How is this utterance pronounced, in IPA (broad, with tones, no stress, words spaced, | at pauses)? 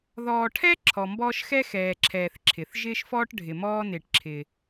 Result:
ðɔː˨ʈʰɛ˥ ǁʰɔ˩mbɔː˦ʃxɛ˥ xɛː˨ǁʰɛː˨θ ǁʰɪ˩θʒɪː˥ʃfɔː˥ʈ ɖʱɪ˨mɔː˥ nɪː˨ʈǁʰɪː˨